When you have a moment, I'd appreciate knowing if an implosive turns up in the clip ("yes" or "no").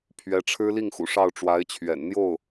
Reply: no